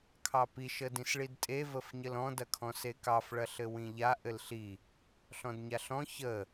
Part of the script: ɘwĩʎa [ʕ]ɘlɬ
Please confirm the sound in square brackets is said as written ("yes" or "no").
no